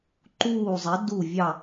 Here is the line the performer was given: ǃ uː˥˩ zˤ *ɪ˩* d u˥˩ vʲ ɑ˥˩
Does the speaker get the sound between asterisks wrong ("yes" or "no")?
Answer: yes